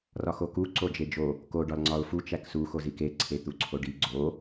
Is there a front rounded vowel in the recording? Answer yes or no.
no